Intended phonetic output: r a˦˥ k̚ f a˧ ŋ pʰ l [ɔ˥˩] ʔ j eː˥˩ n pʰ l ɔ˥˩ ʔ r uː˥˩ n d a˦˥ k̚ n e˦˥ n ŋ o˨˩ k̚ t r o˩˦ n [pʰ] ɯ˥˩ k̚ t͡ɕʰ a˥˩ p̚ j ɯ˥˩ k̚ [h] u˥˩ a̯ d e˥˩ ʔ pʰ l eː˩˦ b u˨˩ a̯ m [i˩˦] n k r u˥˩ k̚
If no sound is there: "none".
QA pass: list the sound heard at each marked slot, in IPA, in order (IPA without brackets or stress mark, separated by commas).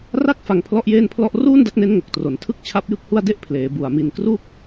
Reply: ɔ˥˩, tʰ, h, i˧